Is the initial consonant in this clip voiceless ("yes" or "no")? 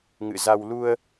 no